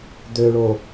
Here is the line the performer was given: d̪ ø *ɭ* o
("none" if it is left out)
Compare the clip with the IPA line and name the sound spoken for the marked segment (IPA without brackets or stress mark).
ɭ